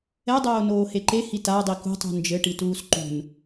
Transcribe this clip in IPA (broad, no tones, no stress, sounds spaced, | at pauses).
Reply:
ɛ dˤ oː n oː h e ǃ e h i t a dˤ i k ṳ tˤ ṳ n d͡ʒ ɘ ʈ i t uː s ǃ ṳ n